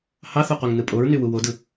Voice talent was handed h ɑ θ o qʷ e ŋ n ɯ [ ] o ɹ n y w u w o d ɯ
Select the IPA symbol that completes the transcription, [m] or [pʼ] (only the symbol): pʼ